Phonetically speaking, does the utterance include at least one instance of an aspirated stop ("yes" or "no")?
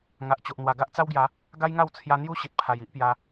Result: yes